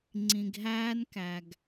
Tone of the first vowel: low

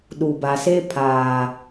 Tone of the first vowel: low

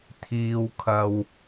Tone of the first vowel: low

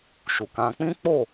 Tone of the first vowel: low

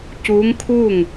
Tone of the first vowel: rising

